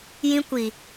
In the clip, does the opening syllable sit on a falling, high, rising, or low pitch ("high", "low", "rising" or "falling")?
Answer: high